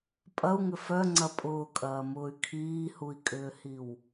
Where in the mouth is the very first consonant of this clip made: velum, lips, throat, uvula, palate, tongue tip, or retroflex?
lips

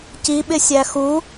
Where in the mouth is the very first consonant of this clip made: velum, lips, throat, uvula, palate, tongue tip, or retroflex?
palate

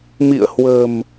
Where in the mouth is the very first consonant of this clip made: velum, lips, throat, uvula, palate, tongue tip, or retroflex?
lips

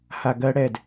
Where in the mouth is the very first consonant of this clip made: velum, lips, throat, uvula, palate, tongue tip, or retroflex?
throat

